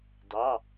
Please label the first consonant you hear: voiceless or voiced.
voiced